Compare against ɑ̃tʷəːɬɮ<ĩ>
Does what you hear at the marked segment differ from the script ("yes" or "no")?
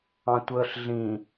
no